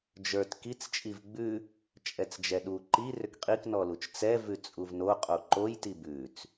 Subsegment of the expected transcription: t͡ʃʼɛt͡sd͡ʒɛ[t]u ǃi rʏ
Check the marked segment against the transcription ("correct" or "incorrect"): incorrect